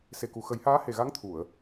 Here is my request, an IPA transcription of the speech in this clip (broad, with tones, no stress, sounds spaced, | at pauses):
s e˨˩ k u˨˩ x ə˨˩˦ j h aː˧˥ h e˨˩ ɣ a˧˥ ŋ t̪ʰ u˨˩˨ ə̯